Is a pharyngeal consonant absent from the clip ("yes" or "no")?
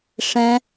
yes